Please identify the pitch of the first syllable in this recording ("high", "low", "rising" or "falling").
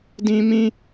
high